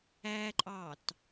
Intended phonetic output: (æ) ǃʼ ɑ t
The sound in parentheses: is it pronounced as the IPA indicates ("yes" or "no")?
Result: yes